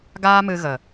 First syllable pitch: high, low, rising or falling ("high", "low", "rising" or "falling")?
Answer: high